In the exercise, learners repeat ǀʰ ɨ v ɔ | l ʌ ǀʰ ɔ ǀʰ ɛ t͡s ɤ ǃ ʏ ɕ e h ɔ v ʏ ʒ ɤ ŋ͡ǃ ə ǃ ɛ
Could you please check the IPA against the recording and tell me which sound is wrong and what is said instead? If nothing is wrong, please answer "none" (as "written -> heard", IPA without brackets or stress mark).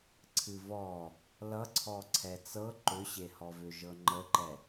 none